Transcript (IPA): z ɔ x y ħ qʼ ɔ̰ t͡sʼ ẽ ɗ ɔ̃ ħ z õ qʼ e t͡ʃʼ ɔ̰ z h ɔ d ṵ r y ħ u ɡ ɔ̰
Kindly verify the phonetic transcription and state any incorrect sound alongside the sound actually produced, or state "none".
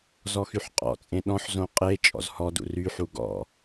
none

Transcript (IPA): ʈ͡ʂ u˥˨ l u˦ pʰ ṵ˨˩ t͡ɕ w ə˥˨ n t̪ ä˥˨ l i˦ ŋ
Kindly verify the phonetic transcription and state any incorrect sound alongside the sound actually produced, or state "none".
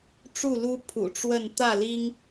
t͡ɕ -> ʈ͡ʂ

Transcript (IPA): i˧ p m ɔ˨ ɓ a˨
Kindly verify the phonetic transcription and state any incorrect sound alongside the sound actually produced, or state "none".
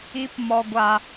ɓ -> ɡʷ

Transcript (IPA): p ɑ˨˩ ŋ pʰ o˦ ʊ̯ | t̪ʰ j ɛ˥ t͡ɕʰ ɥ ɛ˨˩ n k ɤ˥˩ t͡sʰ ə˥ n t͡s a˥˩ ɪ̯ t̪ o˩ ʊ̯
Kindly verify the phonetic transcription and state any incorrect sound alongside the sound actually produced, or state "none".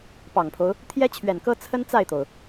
ɤ˥˩ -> ɤ˥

